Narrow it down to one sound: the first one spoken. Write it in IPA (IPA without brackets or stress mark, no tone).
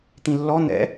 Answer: t̪